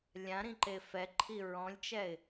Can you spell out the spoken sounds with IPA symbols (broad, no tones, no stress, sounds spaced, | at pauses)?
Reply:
lʲ ã ɾ ĩ ǃ e f ɛ ǃʰ i ɹ ɔ̃ lʲ t͡ʃ ɛ ɪ̯